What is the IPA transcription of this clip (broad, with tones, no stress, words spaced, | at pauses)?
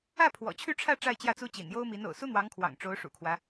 ä˥˩pʰwɔ̰˨˩ t͡ɕʰy˥˧ʈ͡ʂʰä˥˧ ʈ͡ʂa˥˧ɪ̯t͡ɕjä˥˩t͡su˥t͡ɕḭ˨˩n jo˥ʊ̯mi˧˥n o̰˨˩ʊ̯su˥n̪wɑ˧˥ŋkʰwɑ̰˨˩ŋ ʈ͡ʂo˧˥ʊ̯ʂṵ˨˩kʰwä˦